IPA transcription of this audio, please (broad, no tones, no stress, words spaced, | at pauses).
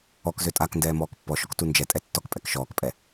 ɔkzø tʼakndɛː mɔːkpːɔʃɔk tund͡ʒɛtʼɛ tːɔk pʼɛkʃɔːkpʼɛ